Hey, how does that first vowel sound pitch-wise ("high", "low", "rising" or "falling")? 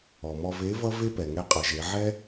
low